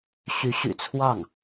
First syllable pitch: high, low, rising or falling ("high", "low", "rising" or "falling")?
rising